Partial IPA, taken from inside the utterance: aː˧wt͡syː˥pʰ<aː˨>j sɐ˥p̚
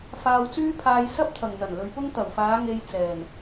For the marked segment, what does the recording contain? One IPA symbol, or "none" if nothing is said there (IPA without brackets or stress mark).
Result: aː˧